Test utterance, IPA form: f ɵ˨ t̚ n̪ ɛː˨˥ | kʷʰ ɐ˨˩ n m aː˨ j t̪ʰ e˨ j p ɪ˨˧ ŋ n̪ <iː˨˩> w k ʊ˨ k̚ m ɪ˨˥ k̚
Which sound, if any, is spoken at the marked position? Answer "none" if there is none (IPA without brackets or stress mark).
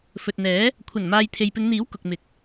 iː˨˥